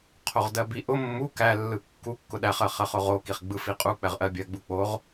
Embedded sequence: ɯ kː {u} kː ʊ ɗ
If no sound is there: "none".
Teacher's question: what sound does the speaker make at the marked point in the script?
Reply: u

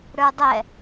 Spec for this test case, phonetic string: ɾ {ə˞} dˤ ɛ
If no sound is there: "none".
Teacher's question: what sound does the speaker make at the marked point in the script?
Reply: ə˞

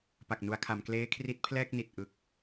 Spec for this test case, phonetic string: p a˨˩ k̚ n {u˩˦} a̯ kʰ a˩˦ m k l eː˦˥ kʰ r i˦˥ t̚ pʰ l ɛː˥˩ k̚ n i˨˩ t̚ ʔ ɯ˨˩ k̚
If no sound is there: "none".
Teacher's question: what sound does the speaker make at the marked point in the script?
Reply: u˩˦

